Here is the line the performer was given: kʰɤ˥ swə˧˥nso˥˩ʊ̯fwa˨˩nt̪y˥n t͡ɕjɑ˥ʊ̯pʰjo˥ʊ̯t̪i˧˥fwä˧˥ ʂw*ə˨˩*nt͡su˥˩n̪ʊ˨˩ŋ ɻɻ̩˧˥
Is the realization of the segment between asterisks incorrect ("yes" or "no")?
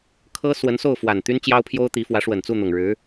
no